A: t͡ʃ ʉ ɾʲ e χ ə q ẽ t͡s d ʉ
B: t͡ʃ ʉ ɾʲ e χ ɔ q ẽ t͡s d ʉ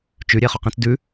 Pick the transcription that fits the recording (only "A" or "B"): B